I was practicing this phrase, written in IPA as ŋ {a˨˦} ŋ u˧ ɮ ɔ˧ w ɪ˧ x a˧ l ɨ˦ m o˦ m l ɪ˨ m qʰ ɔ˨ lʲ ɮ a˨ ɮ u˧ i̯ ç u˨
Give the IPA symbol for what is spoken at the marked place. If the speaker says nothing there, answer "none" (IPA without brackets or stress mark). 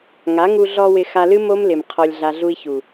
a˨˦